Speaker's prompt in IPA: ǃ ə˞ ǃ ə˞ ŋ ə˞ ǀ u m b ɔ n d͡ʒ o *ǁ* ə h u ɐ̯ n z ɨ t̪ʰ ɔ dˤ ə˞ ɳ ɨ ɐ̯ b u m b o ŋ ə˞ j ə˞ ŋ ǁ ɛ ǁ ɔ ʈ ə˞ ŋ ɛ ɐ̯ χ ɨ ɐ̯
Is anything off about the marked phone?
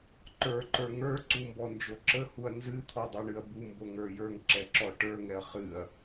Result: no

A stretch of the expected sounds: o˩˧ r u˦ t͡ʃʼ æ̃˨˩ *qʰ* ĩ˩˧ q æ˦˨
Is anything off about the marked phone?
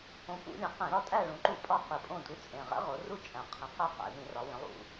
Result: no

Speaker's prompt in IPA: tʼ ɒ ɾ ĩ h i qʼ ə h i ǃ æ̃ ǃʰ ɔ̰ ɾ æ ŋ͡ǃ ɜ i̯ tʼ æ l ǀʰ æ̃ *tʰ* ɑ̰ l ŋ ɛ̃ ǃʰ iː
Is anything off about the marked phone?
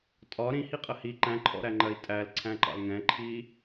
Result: yes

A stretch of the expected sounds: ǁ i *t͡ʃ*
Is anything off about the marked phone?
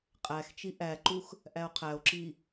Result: yes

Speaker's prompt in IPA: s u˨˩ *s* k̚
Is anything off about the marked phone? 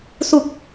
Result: yes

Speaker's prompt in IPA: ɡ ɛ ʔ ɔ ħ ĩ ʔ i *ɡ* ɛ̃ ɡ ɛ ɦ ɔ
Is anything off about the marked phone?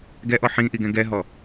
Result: no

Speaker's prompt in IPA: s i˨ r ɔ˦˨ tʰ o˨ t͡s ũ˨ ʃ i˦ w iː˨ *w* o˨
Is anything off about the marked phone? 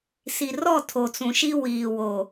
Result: no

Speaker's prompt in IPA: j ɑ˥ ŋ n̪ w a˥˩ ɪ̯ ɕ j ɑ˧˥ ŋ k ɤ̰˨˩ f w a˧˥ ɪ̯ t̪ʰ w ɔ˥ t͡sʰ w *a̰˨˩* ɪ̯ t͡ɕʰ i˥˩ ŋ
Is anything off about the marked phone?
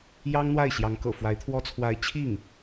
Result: yes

